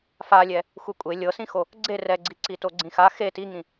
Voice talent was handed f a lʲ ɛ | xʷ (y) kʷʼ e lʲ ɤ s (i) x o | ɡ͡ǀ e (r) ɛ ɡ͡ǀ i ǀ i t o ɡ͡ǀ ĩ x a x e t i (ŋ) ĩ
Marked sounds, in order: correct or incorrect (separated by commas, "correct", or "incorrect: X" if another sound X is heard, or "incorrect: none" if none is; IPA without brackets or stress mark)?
incorrect: e, incorrect: ĩ, correct, correct